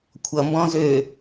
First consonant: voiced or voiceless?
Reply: voiceless